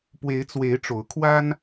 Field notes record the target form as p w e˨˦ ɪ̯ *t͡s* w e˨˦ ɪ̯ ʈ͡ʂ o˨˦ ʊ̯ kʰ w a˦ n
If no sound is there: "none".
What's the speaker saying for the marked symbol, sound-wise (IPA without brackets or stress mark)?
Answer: t͡s